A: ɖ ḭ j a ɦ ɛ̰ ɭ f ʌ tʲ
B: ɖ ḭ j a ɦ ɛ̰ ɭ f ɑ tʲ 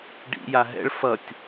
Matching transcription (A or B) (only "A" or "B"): A